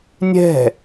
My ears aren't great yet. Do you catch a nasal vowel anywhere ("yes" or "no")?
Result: no